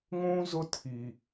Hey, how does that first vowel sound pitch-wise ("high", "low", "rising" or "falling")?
high